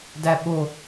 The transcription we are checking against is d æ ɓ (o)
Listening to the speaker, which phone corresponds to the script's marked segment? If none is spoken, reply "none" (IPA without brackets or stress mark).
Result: o